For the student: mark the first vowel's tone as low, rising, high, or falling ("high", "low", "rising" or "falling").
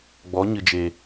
rising